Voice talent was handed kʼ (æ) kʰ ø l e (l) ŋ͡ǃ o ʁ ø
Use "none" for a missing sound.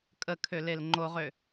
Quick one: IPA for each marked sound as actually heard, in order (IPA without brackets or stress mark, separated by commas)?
ə, l